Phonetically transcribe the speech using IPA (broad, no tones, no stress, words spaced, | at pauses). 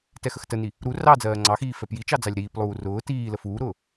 tɛxəxtəni | ɾu rɑ d͡zɜːŋ͡ǀɑxiː fɛpjit͡ʃɑ d͡zɑlʲɾiːplˠuː rʊː tiː ləfuːɾʊː